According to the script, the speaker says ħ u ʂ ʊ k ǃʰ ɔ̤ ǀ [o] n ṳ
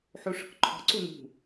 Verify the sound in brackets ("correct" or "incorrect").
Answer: incorrect